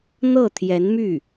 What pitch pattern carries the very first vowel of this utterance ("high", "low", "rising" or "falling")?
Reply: falling